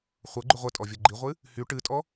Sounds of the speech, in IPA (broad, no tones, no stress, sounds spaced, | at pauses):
χʷ ɤ ɡ͡ǃ ʉ ʁʷ ə tʼ ɔ vʲ ɤ ɡ͡ǃ i ʁʷ ɨ | h y ʈ ɨ tʼ ɔ